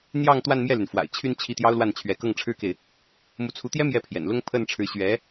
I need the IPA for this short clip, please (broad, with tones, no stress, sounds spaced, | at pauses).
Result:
n̪ j ɑ˥˧ ŋ t̪ w a˥˧ n m j ɛ˥˩ l y˩ n f w a̰˨˩ ɪ̯ t͡ɕʰ y˥˧ n t͡ɕʰ i˥˩ t̪ j ɑ˥ ʊ̯ l w a˥˩ n t͡ɕʰ ɥ ɛ˧˥ k ɤ˥˩ ŋ ʈ͡ʂʰ ɻ̩˥ k e˨ ɪ̯ | m u˧˥ t͡sʰ u˧˥ t̪ j ɛ˥ m j ɛ˥˩ pʰ j ɛ̰˨˩ n l ʊ˥ ŋ pʰ ə˥˩ n ʈ͡ʂʰ ɻ̩˧˥ ɕ ɥ ɛ˧˥